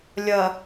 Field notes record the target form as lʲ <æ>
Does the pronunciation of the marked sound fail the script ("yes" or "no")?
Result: yes